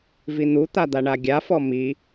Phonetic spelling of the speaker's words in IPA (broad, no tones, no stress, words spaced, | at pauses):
vin̪ut̪a d̪aɳaɡʲafɔ mi